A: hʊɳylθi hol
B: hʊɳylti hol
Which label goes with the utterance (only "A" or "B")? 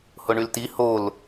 B